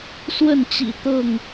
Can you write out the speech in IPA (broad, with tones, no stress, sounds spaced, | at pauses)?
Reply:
s w ə˥˨ n t͡ɕ ḭ˨˩ t̪ ɤ˥˨ ŋ